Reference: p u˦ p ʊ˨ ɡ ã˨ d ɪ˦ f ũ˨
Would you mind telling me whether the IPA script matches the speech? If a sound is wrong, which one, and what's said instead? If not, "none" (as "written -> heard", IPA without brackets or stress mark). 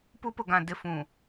none